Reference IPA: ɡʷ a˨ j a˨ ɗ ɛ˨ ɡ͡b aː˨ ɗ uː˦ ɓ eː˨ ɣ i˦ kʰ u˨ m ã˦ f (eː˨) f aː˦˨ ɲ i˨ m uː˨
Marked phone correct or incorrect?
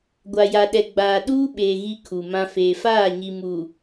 correct